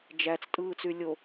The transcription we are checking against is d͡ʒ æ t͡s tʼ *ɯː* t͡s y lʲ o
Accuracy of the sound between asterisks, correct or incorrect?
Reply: correct